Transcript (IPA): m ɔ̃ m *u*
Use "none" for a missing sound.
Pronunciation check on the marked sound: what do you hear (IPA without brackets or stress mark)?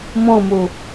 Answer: u